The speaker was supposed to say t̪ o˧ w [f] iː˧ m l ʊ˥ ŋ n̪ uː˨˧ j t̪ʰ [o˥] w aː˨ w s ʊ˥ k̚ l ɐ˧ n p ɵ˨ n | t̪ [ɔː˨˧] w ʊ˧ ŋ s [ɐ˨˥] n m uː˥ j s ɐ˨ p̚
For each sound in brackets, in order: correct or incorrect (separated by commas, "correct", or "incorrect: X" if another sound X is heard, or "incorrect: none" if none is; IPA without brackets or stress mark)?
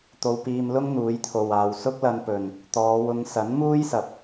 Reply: incorrect: p, incorrect: o˨, correct, correct